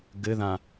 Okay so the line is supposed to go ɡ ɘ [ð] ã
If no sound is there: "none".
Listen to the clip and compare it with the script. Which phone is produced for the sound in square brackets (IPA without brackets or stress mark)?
ð